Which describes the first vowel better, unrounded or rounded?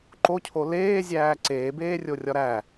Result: rounded